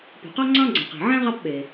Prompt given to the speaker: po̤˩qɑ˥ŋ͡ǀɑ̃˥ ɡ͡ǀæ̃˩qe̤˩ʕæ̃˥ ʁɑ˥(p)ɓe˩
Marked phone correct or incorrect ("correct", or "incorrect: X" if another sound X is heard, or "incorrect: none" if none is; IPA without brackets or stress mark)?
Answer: correct